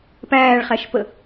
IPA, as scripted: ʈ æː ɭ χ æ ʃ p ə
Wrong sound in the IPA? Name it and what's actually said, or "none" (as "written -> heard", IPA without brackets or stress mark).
ʈ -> p